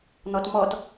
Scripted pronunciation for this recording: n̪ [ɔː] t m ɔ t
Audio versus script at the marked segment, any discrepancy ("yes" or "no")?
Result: yes